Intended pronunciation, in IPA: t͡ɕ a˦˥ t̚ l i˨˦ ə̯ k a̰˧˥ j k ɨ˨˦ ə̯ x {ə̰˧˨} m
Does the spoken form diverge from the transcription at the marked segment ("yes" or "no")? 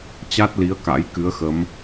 yes